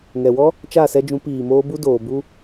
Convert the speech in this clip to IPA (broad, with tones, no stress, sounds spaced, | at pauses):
ŋ ɛ˨ w ɔ˦ | t͡ʃ a˦˨ s ɛ˧ d͡ʒ ũ˨˦ p iː˨ m oː˦ b u˦ d oː˨ b u˦